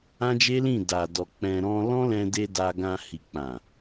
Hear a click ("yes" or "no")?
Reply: no